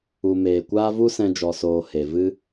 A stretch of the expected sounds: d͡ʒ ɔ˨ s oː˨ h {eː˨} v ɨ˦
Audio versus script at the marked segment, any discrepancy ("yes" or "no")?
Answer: yes